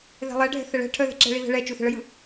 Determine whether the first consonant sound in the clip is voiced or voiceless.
voiced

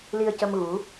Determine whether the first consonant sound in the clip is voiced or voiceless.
voiced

